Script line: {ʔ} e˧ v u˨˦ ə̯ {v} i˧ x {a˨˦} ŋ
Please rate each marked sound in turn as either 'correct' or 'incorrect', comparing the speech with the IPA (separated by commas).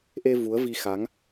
correct, correct, correct